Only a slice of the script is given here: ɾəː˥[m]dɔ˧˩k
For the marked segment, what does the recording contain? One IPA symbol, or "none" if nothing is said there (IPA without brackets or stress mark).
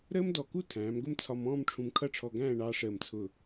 m